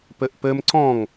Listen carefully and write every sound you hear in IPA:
p ɘ ʔ p ɘ m ǀ ɔ̃ ŋ

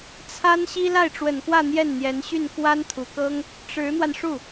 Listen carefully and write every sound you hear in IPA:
t͡sʰ a˥ n ɕ i˥ l a˥˩ ɪ̯ ʈ͡ʂ w ə˨˩ n k w ä˥˧ n̪ j ɛ˥˩ n n̪ j ɛ˧˥ n ɕ y˥˩ n k w a˥ n t̪ʰ u˨˩ k ɤ˥ ŋ | ʈ͡ʂ ɻ̩˧˥ n̪ w a˧ n ʂ u˥˩

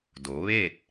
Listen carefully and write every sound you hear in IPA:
d o˩˧ ʋ eː˥˨ t̚

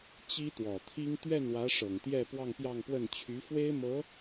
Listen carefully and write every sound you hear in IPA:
t͡ɕ i˥ t̪ w ɔ˨˩ t̪ʰ i˥ ŋ t̪ ɥ ɛ˥˩ n w ä˧˥ ʂ ɤ˨˩ ŋ t̪ j ɛ˥˧ p w ɑ˥˧ ŋ p j ɑ˥˧ ŋ p w ə˥˩ n t͡ɕʰ y˧˥ f w e˥ ɪ̯ m ɤ˧˥

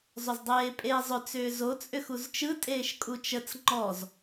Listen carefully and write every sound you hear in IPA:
zˤ ʏ z dˤ eː pʼ eː zˤ ʏ t͡s ʏː z o t͡sʼ ʏ x u z t͡ʃ ɯ tʼ eː ʃ kʼ u t͡ʃ ə t͡s ŋ͡ǃ ɔ z

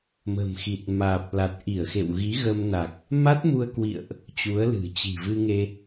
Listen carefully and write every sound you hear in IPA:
m ə̤˨˩ m x i˨˩ t̚ m aː˨˩ p̚ l a˨˩ t̚ ʔ i˧˩ ə̯ x ḛ˧˨ w ɣ i˨˦ ɣ ə˧ m n a˨˩ k̚ | m a˦˥ t̚ m u˧ ə̯ k w ḭ˧˨ ə̯ ʔ | t͡ɕ u˨˦ ə̯ l ɨ̤˨˩ t͡ɕ i̤˨˩ v ɨ˧ ŋ e˧

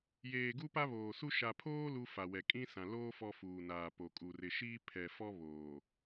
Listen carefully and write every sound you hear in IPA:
j eː˨ ɡ u˦ p a˦ β oː˨ s u˦ ʃ a˨ pʰ oː˦ l u˦ f a˨ w ɛ˨ kʼ ĩ˦ s ã˨ l oː˦ f ɔ˦ f uː˨ n aː˨ p o˨ kʼ u˨ r ɪ˨ ʃ iː˦ pʰ ɛ˨ f ɔ˦ β oː˨

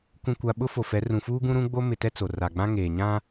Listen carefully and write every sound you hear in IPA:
k ũ˨ kʷ a˨ ɓ ʊ˦ f o˨ f ɛ˨˦ r ũ˨ f uː˦ ɡ ũ˦ ɾ ũ˦ ɡ͡b o˦ m ɪ˨ t ɛ˦ t͡s o˨ r a˨ ɡ͡b ã˦ ŋ eː˨ ɲ ã˦

